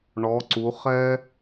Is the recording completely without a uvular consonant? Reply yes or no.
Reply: no